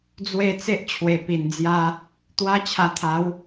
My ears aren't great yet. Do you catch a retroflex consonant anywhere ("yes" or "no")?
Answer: no